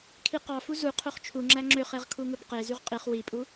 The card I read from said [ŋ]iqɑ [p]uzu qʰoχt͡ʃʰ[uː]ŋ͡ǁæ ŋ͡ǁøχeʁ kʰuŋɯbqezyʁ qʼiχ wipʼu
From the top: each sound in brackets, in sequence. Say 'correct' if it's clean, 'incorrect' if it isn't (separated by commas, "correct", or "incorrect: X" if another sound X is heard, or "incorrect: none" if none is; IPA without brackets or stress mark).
incorrect: kʰ, incorrect: f, incorrect: u